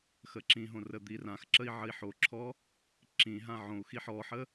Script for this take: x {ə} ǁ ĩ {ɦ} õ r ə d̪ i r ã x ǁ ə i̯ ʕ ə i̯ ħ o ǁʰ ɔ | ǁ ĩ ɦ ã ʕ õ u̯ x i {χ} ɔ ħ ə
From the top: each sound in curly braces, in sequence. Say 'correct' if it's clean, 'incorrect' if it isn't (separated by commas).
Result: correct, correct, incorrect